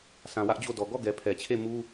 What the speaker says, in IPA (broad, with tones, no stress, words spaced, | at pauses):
sã˨wä˦ʔd͡ʑo˦˨dɔ˨ ɡɔ˦˨ ɡɛ˨pʰɛ˨t͡ɕʰe˦˨mu˦